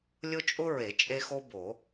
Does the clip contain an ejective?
yes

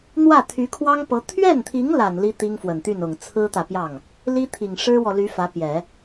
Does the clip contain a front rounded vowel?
yes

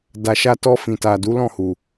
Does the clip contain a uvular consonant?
no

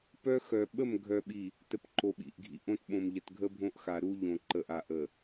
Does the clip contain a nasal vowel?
yes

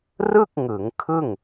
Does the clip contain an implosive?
no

